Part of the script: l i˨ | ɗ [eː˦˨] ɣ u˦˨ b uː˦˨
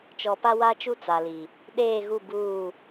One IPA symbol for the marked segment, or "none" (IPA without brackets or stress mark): eː˦˨